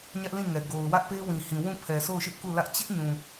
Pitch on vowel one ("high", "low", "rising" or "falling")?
high